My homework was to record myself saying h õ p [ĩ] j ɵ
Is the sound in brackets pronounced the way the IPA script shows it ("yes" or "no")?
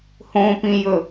yes